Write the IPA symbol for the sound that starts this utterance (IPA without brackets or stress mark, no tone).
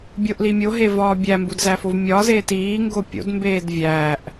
bʲ